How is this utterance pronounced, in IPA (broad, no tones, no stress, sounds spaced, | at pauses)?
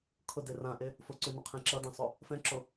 kʰ ʊ d e r ã ʔ e | f ʊ ǀ ʉ n ʊ qʰ ẽ ǁ ʌ d ɛ̃ sˤ o | f ɛ̃ ǁ o